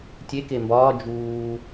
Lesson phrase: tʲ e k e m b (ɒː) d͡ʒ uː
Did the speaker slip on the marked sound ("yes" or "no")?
no